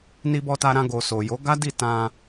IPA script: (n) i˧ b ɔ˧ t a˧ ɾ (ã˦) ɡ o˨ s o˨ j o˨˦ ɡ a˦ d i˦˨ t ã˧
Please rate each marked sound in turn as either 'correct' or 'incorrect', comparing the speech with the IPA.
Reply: correct, incorrect: ã˧

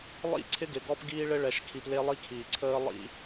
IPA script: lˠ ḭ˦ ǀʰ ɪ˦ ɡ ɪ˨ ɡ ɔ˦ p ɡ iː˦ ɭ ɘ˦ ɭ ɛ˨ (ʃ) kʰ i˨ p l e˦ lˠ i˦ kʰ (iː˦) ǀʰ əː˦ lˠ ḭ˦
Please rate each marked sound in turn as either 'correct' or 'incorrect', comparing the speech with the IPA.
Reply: correct, incorrect: iː˨

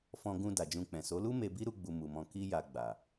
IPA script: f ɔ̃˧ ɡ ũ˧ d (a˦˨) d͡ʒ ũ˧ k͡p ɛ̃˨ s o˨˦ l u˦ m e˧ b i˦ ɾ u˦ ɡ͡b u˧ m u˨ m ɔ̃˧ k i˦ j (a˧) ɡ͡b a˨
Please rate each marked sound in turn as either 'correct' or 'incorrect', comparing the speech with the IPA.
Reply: incorrect: a˨, correct

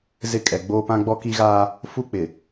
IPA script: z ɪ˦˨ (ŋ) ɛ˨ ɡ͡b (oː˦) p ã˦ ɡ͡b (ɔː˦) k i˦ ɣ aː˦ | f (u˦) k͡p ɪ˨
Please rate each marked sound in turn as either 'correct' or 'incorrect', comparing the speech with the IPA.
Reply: incorrect: kʼ, correct, incorrect: ɔ˦, correct

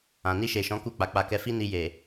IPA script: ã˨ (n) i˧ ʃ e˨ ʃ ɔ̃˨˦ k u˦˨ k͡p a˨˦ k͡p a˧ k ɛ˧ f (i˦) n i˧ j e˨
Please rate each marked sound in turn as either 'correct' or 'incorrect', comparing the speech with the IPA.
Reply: correct, correct

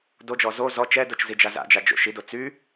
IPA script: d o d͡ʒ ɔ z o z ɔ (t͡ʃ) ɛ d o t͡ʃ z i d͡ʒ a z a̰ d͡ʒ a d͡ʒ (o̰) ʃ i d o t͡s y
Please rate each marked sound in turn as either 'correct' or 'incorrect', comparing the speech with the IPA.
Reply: correct, correct

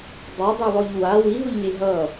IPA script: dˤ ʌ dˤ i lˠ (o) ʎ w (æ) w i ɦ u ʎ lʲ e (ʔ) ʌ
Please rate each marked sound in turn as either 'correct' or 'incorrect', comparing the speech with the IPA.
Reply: correct, incorrect: a, incorrect: ɦ

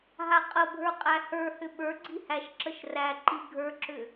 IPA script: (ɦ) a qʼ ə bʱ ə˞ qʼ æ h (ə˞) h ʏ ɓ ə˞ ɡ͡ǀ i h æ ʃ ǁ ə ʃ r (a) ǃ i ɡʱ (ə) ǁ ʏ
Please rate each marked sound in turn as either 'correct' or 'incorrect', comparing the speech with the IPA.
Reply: correct, correct, incorrect: æ, incorrect: ə˞

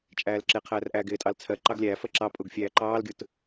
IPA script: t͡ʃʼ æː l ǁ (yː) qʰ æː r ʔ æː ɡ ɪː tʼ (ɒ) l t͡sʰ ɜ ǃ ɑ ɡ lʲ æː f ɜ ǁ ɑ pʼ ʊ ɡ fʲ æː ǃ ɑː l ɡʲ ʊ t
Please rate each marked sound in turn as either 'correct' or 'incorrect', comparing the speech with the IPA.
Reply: incorrect: ɪː, incorrect: ɑ

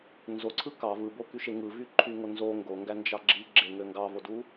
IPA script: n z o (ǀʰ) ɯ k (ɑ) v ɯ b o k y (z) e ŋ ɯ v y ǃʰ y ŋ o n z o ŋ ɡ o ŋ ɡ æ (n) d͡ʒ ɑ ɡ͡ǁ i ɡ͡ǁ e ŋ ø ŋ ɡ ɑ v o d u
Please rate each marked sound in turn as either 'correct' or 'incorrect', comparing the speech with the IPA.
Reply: correct, correct, incorrect: ʃ, correct

